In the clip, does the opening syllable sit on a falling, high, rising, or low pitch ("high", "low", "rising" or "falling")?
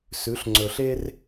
rising